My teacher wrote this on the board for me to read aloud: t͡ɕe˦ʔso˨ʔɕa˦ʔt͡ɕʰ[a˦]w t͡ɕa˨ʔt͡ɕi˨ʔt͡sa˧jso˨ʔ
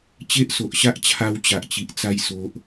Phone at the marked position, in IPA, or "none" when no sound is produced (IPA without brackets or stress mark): a˧